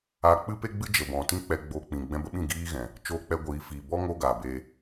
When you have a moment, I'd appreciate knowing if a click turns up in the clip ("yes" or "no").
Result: no